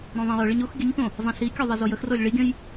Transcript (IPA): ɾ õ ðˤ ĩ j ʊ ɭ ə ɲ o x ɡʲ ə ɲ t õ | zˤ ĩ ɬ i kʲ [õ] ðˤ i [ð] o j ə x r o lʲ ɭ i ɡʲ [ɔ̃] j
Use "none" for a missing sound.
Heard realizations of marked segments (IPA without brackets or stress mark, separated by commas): o, z, ə̃